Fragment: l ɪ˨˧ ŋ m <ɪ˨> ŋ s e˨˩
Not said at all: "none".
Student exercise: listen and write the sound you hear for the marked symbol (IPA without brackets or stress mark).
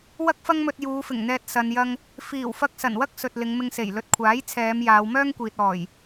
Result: ɪ˧